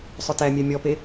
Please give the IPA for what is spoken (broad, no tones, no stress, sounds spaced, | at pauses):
sˤ ʊ t æ mʲ æ mʲ ɔ p e